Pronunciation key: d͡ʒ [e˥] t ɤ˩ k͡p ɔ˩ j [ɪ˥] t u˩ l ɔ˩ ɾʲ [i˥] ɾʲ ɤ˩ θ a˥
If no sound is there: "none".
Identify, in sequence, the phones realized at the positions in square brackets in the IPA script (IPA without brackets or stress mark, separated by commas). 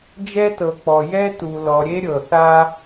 ɛ˥, ɛ˥, e˥